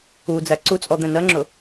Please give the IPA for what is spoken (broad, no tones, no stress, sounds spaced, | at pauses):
u d͡z æ ǀ u t͡sʼ ɔ d̪ ɛ̃ n ɜ ŋ͡ǁ ʊ